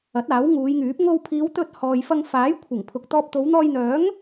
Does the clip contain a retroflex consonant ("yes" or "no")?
no